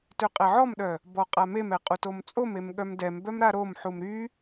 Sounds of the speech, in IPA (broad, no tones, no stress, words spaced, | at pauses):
tøqʼɛʕɔmɗœ | bɔqʼamemɛ qʼutomt͡sʼomem ɠœmdɛmbœm ɾaɾomħum ɾy